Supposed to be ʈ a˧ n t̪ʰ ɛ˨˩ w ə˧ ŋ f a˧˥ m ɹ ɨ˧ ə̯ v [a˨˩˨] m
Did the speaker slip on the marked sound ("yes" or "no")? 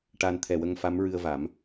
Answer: yes